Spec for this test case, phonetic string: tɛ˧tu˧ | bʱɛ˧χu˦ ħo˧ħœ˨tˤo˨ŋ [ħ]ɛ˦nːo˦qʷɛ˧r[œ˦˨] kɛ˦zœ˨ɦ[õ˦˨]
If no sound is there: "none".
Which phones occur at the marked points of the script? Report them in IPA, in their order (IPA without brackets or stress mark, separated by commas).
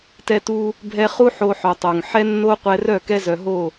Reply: ħ, œ˦˨, o˦˨